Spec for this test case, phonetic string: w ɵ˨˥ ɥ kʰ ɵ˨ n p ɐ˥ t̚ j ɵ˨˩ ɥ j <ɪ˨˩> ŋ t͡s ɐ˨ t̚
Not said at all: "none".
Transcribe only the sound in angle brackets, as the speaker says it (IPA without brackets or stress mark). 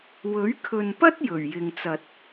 ɪ˨